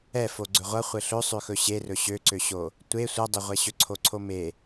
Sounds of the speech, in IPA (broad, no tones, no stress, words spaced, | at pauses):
ɛ foɡ͡ǀɵʁʷʌ χʷɘɬɵ sˤøxɵɕerɵ ɕøǀøɕo | tʷe sʷʌdˤɛʁʷɛɕɵ ǀʰoǀʰome